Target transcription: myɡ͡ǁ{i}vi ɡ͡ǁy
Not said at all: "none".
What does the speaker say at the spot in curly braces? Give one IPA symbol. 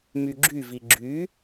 y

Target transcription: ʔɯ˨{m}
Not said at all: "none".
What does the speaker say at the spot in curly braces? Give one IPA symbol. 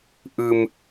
m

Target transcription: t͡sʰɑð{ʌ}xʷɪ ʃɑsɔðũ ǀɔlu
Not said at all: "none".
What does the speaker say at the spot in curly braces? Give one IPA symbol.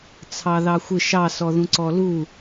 ɑ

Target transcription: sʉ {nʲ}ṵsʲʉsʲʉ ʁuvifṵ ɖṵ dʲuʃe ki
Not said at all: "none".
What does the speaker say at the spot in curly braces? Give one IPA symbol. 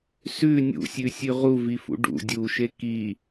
nʲ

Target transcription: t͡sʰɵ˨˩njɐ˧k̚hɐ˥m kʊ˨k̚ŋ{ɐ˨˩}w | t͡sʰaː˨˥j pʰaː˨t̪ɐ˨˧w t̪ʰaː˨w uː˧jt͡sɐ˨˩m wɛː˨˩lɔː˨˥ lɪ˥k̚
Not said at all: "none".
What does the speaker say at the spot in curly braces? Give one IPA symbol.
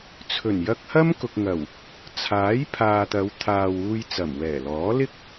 ɐ˨˩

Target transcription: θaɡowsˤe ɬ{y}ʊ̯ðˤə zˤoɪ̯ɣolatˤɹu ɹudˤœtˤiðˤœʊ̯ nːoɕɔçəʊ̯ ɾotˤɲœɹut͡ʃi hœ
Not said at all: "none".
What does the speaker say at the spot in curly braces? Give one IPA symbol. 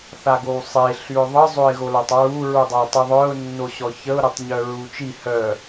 y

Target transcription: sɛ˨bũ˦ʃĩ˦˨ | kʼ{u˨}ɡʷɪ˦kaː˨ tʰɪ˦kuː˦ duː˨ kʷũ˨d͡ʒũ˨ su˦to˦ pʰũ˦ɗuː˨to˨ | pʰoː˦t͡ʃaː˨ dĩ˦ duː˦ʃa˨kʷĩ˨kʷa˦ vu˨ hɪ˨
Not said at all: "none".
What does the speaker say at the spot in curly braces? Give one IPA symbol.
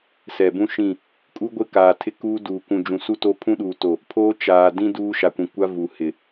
u˦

